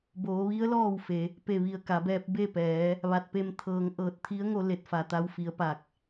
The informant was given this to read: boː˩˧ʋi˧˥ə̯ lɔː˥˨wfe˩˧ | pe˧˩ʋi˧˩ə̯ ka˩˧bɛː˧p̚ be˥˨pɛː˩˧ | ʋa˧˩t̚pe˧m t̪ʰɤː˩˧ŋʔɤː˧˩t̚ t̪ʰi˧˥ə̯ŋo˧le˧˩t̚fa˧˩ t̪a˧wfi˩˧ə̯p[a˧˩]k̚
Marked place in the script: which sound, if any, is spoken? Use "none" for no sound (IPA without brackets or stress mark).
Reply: a˧˩